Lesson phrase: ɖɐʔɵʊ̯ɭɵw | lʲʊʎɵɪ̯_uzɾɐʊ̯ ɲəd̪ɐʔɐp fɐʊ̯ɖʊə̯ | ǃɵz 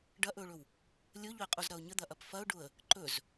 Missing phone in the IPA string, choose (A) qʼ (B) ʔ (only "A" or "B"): A